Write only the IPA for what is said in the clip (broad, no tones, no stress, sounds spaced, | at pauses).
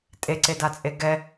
tʼ e ǀ e d a t͡sʼ e ɡ ɛ